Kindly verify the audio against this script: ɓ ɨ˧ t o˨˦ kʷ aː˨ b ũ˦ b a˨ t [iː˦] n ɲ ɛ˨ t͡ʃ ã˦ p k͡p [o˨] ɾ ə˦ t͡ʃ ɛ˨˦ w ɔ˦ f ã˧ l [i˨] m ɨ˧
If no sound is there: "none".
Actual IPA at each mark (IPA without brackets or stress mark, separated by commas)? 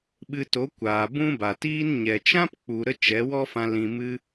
iː˦, u˨, ĩ˨